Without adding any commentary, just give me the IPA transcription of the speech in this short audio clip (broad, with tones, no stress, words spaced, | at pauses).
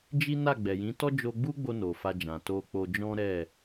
d͡ʒi˦na˦˨ ɡ͡bɛ˨jĩ˨˦tɔ˦ d͡ʒo˧ɡ͡bu˦ɡ͡bo˧ no˨fa˧d͡ʒã˨ to˧k͡po˧d͡ʒɔ̃˦ ɾɛ˦˨